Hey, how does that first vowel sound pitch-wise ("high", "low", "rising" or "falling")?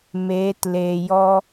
rising